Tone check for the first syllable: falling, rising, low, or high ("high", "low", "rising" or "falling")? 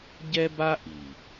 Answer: high